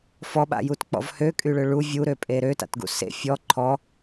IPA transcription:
f ɔ ɓ a̰ j u t k͡p ɔ̰ v h ø kʼ y ɭ ø ɭ u vʲ u ɾ ø pʼ e ɾ ø t a̰ t ɡ ṵ s ḛ fʲ ɔ ǃʰ ɔ

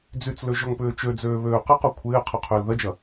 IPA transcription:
d͡z y t͡s l ø ʒ ɔ ŋ p ʏː t͡ʃ ø d͡z øː β øː q ɪ q o kʷʰ ɪː qʰ ʊ qʰ ʏː l ð ɐ d͡ʒ ɐ

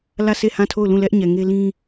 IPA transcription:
l ä˦˨ sʰ e˦˨ h ã˦˨ tʰ o˦˨ ʊ̯ l ũ˦˨ l ɛ˦ ʔ ɲ ɛ˨ ŋ e˦ l ĩ˦

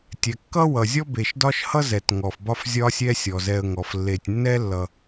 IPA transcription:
tʲ ɛ˩ kː ʌ˥ w ʌ˩ zʲ ɔ˥ b e˨ ʃ d ɒ˥ ʃ h ʌ˥ z ɛ˩ t ŋ ɔ˩ f b ɒ˦ f zʲ ɒ˦ sʲ ɛ˦ sʲ ɔ˩ z ɛ˨ ə̯ ŋ ɔ˩ f lː e˨ tʲ nː ɛ˥ lː ʌ˨

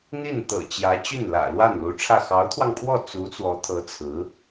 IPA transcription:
n̪ i˥˩ n t̪ ɤ̰˨˩ t͡ɕ j ä˧˥ t͡ɕ y˥˩ n l ä̰˨˩ l w a˥˩ n l u˧˥ ʈ͡ʂʰ ä˥˩ x ɑ˧˥ ʊ̯ t̪ʰ w ɑ˧ ŋ pʰ w ɔ˥˩ t͡s u˧˥ t͡s w ɔ˧˥ t̪ʰ ɤ˧˥ t͡sʰ ɹ̩˧˥

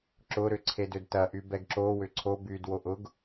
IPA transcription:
ǁ ʊ ɾ ʏ ǀʰ e d ʏ d t ɐ ʔ y b ɛ ɡ ǁ o w ʏ ǀʰ o b y d w o ʔ ʊ ɡ

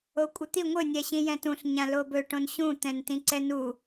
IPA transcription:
o kʷʼ ɪ t̪ i ŋʷ ɘ nʲ ɛ ɕ ĩ j ɛ̃ t ũ ɬ ɲ ã l o b ɵ ʈ õ n ɕ ũ t̪ ɛ̃ n t ĩ ǀ ɛ n u

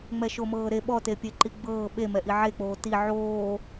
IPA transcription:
ŋ͡m ɛ ʃ o m ɤː ɾ e ɓ ɔ t e pʲ e ǃ i ɡ͡b ɤː ɓ e m ɛ ʔ i ʕ e k͡p oː t i ʕ oː

